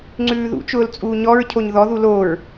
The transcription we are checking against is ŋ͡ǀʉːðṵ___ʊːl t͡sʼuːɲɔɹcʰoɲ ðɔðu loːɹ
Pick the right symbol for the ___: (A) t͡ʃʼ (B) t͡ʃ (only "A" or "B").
B